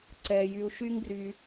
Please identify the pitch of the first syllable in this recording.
low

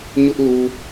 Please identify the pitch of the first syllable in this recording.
high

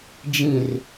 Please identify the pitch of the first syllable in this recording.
low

